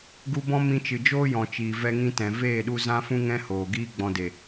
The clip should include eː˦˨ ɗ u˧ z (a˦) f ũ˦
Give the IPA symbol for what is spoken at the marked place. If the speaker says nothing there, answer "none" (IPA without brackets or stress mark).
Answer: ã˦